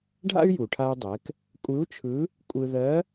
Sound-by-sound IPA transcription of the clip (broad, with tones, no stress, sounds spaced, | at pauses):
ɖʱ a̰˥ y̯ j u˩ ʈʰ a˧ u̯ dˤ ɛ˩˧ k | kʷʼ ɯ˧˥ u̯ t͡ʃʰ ɯ˧˥ | kʷʼ ɯ˧ ð ɜ˧˥